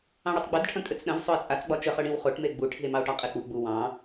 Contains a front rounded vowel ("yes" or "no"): no